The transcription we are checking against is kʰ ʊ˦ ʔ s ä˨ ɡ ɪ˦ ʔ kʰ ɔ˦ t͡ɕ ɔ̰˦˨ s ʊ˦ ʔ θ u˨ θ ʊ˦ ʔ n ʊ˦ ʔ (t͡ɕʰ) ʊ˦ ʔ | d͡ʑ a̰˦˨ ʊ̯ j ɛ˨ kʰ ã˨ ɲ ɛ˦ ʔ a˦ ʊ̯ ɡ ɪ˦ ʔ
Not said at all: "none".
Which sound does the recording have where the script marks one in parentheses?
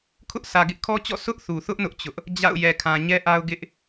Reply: t͡ɕ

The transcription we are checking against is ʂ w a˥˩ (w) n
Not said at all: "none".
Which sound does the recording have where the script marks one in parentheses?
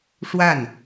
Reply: none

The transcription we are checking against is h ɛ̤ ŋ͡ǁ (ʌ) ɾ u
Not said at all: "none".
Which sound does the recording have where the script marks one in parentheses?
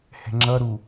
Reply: ʌ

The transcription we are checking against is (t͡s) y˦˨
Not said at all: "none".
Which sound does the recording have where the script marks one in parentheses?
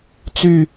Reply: t͡s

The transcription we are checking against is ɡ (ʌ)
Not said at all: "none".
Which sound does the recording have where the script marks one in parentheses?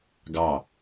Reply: ɑ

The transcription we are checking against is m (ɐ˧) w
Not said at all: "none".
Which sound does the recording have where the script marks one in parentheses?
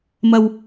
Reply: ɐ˧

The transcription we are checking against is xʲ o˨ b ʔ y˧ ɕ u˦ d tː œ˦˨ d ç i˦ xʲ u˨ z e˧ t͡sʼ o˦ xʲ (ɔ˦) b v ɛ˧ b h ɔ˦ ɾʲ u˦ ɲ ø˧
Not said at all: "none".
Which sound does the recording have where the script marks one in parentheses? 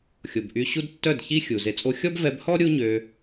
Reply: ɔ˦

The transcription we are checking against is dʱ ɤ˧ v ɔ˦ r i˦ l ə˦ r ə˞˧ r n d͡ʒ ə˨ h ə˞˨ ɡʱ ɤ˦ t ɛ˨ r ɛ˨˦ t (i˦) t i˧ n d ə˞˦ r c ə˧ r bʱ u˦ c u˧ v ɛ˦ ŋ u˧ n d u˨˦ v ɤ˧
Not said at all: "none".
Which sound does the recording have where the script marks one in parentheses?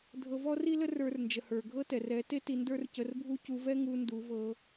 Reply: e˦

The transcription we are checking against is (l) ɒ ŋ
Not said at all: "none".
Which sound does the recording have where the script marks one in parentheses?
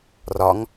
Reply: r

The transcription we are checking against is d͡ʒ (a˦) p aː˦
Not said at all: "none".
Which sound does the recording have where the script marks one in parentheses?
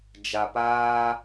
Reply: a˨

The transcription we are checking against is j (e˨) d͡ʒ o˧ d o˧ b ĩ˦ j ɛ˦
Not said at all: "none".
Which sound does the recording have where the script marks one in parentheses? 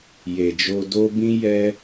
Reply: e˨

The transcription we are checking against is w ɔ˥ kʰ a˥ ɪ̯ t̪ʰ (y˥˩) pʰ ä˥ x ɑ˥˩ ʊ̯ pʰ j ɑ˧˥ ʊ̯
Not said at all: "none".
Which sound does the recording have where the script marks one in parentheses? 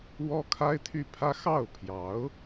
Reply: y˥˩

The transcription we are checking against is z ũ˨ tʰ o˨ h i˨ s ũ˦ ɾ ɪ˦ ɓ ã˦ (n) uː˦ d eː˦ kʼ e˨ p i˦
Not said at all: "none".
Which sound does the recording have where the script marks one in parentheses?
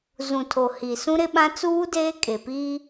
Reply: t͡s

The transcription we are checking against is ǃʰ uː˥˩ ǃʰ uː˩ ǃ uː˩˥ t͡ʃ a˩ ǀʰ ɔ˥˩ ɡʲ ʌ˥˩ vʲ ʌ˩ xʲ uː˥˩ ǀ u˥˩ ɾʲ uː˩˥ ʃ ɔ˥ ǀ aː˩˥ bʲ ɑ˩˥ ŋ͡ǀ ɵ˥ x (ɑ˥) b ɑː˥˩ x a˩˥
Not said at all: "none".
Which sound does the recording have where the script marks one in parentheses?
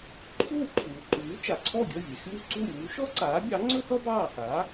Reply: ʌ˥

